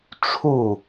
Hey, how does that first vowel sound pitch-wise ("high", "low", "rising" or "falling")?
falling